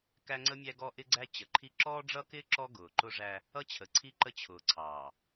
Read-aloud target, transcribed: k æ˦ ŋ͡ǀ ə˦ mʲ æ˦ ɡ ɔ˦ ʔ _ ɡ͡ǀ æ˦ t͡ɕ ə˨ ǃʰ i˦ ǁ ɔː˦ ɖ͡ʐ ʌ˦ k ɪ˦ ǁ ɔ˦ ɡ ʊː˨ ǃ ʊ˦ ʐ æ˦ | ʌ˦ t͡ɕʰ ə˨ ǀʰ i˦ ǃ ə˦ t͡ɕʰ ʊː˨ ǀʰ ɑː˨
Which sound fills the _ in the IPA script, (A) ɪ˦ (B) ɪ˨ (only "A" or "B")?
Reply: A